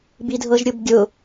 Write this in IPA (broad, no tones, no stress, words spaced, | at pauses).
bidʱɤʒɾʲʊbɡʲʊ